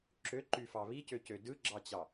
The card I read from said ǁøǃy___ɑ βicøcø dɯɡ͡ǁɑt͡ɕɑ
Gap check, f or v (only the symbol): f